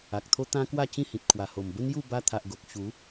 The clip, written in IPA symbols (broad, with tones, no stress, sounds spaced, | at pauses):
a˨ k̚ t̪ʰ o˦ t̪ ã˦ k w a˥˧ t͡ɕ ĩ˥˧ h ĩ˨ t̚ kʰ w a˨˩ h o˨˩ m b ə˦ n j u˥˧ b a˧ t̪ʰ a˨ ʔ ɡ o˨ k̚ ɕ u˨˦